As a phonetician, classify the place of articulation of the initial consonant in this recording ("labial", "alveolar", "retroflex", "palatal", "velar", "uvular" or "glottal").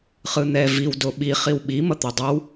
uvular